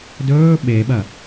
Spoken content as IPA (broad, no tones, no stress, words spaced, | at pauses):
dɵː ɓeɓɐ